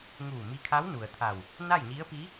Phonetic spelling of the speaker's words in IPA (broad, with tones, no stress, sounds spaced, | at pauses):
ŋ uː˧˩ m i˧ kʰ a˧˥ w n u˩ ə̯ t̪ʰ a˧˩ w | n a˥˨ j ɲ i˧˥ ə̯ p i˧˥